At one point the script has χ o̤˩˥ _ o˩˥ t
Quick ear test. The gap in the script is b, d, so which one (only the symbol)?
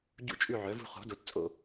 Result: d